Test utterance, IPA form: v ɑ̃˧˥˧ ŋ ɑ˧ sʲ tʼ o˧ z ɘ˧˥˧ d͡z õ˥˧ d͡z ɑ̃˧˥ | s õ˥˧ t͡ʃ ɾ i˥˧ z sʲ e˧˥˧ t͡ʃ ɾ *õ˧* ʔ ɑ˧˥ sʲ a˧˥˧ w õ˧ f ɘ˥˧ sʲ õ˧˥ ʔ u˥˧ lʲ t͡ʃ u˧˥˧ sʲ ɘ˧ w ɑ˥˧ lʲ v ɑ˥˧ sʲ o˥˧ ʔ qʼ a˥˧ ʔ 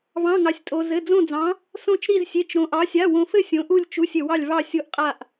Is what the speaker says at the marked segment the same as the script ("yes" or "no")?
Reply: yes